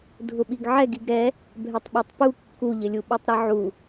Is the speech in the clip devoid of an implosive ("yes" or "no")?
no